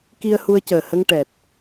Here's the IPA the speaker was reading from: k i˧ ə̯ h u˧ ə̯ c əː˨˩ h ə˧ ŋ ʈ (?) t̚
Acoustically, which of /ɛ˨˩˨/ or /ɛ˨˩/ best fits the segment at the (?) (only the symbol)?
ɛ˨˩